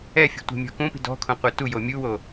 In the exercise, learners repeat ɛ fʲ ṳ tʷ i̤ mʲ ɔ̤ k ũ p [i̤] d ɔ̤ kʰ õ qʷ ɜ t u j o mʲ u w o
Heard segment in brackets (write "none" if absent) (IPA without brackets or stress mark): i̤